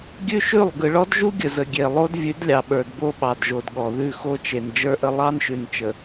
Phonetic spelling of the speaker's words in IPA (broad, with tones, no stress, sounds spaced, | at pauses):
ɡʲ ʉ˦ ʃ ʉ˦˨ lˠ ɡ ɯ˨ ɭ ɔ˦ d ʒ u˦ ɡʲ ə˨ z ə˨ ɡʲ e˨ lˠ o˦ d vʲ ʉ˨˦ d lʲ ɑ˨ ɓ ə˞˨ d b o˦ ɓ ɑ˨ d ʒ o˨ d ɠ ɔ˨ ð ʉ˦˨ x o˦ t͡ʃ e˨ n d͡ʒ ə˞˦ ʔ ə˦ lˠ ɑ˦ n ʃ ʉ˨ n t͡ʃ ə˨